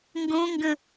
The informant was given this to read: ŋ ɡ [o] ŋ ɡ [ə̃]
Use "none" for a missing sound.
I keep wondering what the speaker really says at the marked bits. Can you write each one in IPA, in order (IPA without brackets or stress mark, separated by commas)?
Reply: õ, ə̃